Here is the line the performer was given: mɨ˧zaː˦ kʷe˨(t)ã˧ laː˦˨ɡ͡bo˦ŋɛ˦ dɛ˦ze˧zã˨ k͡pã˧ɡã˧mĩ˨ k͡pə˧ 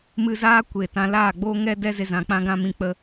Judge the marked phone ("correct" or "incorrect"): correct